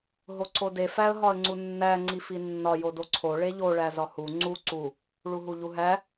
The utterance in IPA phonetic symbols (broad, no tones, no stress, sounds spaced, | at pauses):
ɦ o ǀ o d e f æ ə̯ ɦ ɒ ə̯ ŋ͡ǀ u nː æ ŋ͡ǀ i f i nː ɒ j o d o ǀʰ o ɭ e ʎ o ɭ æ z ɒ h u ŋ͡ǀ u ǀ u | ɭ u ɦ u ʎ u ɦ æ